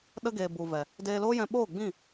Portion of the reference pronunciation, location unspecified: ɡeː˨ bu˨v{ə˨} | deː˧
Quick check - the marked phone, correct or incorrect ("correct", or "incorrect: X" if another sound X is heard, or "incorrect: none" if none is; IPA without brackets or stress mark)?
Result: incorrect: ɛ˨